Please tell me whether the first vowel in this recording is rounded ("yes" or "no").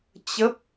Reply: no